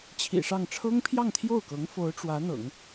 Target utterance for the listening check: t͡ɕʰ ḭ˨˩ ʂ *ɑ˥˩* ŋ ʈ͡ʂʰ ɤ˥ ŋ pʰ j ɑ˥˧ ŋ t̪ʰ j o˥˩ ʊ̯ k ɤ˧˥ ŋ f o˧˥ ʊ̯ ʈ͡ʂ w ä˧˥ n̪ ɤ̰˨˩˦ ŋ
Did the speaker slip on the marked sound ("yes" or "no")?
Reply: no